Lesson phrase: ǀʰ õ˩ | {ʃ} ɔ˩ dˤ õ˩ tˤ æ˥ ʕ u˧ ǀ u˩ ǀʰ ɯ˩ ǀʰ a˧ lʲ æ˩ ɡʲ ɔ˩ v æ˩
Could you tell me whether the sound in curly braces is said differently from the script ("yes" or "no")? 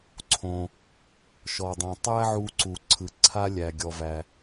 no